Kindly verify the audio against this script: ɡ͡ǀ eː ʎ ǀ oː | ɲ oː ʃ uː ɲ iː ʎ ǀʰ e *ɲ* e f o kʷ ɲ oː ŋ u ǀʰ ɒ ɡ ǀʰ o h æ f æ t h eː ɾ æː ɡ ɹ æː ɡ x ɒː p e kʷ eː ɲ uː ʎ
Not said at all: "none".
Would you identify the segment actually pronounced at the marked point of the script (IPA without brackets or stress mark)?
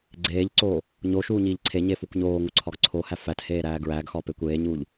ɲ